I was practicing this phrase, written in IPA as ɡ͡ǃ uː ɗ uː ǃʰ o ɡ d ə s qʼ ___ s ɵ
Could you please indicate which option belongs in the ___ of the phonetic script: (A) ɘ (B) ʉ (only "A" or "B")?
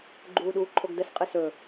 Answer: A